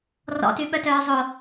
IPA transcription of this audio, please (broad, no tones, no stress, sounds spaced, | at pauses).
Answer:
r ɔ̰ t y ɓ œ t œː zˤ o